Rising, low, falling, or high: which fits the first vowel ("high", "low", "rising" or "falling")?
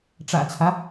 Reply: low